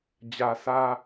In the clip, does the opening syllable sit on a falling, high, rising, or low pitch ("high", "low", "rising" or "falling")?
low